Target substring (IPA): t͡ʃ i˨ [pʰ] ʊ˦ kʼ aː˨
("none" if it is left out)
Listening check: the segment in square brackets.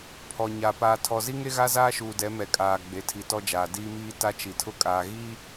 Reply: tʰ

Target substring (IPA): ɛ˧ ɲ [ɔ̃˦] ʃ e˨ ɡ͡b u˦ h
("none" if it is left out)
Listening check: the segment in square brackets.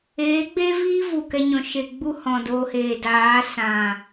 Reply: ɔ̃˨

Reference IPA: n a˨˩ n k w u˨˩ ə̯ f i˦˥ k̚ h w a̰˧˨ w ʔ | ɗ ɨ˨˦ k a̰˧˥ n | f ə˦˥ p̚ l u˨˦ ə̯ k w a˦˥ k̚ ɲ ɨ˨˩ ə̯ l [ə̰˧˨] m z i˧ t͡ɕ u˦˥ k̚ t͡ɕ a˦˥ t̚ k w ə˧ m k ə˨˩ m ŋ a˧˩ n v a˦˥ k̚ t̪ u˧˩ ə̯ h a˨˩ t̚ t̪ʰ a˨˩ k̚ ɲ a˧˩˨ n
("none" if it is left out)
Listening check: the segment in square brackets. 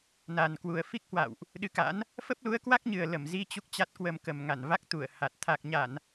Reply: ə˧˩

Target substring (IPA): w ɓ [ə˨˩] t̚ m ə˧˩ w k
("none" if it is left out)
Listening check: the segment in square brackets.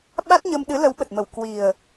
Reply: ə˨˩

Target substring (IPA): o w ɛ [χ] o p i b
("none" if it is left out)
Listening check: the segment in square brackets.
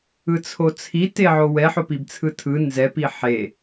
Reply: ħ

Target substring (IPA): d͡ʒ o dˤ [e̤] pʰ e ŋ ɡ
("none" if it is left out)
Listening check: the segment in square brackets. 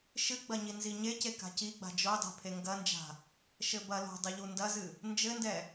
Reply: e̤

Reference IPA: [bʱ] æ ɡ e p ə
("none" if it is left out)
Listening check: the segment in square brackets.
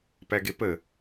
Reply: p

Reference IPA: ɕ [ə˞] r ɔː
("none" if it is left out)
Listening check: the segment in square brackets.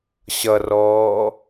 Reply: ʌ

